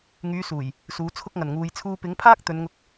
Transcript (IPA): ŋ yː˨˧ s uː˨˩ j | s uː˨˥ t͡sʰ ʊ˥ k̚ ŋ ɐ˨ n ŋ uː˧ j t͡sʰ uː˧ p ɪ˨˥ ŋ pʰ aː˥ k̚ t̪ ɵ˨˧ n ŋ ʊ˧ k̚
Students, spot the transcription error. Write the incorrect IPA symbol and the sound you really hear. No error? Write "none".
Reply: none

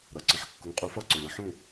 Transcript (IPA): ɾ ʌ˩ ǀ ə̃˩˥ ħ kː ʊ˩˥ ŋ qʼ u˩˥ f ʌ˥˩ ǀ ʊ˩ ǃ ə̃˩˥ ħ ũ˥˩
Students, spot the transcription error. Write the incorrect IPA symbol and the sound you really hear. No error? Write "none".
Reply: ǃ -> ŋ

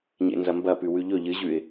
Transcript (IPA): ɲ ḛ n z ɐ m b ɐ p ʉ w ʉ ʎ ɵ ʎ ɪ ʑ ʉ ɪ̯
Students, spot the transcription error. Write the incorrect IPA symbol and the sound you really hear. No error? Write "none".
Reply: ɪ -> ɨ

